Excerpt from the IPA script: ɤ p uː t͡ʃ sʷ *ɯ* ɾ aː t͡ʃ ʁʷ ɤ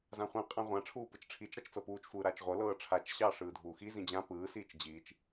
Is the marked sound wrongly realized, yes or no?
yes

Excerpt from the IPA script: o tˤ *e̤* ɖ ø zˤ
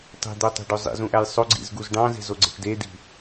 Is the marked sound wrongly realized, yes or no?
no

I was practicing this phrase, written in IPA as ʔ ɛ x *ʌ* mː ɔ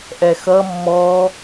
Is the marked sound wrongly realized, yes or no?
no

